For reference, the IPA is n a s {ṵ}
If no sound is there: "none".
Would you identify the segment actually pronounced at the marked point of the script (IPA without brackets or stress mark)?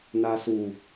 u